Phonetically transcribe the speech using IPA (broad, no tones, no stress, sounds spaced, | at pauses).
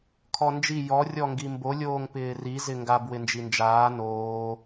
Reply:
kʰ ɔ n d͡ʒ i j ɔ rʲ ɔ ŋ ɡ i m b o lʲ oː ŋ p ɪː r i z ɪ ŋ ɡ a b w ɪ n d͡ʒ i n d͡ʒ aː n oː